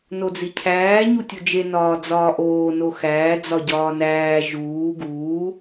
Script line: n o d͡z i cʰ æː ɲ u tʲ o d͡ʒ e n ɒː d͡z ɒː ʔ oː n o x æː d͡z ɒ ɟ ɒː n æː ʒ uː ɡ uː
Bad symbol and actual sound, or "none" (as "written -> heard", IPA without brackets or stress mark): none